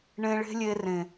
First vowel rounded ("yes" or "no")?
no